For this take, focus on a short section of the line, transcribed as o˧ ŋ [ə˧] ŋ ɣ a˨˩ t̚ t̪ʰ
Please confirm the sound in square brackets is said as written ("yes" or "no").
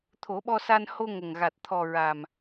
no